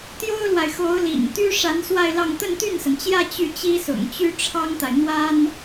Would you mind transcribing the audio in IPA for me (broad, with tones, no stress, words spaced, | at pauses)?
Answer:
t̪jo˥ʊ̯lwa˨ɪ̯xo˧˥ʊ̯lḭ˨˩ŋ t̪y˥ ʂa˧˥nswa˥˧ɪ̯lɑ˥˧ŋ t̪ə˥˧nt̪y˥˩nsə˩nt͡ɕjä˥˧ t͡ɕy˥˩t͡ɕi˥sʊ̰˨˩ŋt͡ɕy˥ ʈ͡ʂʰɑ˥ŋt̪a˨ɪ̯ n̪wa˥n